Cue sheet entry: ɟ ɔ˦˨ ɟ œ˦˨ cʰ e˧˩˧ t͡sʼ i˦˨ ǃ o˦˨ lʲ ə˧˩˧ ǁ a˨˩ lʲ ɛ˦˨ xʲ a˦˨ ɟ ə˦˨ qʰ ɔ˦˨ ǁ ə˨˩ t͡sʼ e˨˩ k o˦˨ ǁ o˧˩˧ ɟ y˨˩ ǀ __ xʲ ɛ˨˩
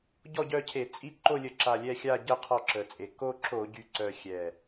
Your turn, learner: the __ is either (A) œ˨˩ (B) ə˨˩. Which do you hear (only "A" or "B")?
A